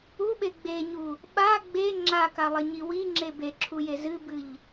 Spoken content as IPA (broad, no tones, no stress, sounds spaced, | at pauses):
u ɓ e ɡ͡b e ɲ u | ɓ a ɡ͡b e ŋ͡ǁ a k a lˠ e ɲ i w i ŋ͡ǁ e b e ǁʰ u j e z ɨ b ɨ ʎ